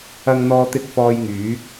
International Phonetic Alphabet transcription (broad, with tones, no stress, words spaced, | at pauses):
ɐ˧ŋ n̪ɔː˨t̪ɪ˨˥k̚fɔː˨j ŋyː˨˥k̚